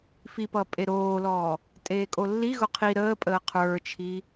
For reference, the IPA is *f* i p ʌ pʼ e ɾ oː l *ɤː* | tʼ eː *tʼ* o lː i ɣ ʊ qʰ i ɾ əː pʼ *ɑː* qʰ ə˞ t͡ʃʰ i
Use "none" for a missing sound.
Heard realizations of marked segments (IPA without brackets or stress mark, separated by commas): f, ɔː, kʼ, əː